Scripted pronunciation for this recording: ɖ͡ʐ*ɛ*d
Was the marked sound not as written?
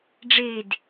yes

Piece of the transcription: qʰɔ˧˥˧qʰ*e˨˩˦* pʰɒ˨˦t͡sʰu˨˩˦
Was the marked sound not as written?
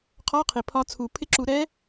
yes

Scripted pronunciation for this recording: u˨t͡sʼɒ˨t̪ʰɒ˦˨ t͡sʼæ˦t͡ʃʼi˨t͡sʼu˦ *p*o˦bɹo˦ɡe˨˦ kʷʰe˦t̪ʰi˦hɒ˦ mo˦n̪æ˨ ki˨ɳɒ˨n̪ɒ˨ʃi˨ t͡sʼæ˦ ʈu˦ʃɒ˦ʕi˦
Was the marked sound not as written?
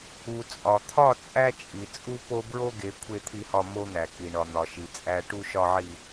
no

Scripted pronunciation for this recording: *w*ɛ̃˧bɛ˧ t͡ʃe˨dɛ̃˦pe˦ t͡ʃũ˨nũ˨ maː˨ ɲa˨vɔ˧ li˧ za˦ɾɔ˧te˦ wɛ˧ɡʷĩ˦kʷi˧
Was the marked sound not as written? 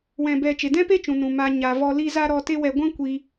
no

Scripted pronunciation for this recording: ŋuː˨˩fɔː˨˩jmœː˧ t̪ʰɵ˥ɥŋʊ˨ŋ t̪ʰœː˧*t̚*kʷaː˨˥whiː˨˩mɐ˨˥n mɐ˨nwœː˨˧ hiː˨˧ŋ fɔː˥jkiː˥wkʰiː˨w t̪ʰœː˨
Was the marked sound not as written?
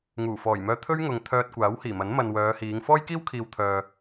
no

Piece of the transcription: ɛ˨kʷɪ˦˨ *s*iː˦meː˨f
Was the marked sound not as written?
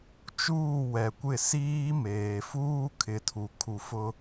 no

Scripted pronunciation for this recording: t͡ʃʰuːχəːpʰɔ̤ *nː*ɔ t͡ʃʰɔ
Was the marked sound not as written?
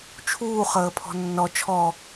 no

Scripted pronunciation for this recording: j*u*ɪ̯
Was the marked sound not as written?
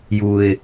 no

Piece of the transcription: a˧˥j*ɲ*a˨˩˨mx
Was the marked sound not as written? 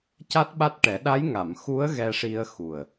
yes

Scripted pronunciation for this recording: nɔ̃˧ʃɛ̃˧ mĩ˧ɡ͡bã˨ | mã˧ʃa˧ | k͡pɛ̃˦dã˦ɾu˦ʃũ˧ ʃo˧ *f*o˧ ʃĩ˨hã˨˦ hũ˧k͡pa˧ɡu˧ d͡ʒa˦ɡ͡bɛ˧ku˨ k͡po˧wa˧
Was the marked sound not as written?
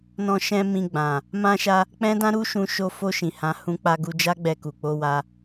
no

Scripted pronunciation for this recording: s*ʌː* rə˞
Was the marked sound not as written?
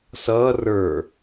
no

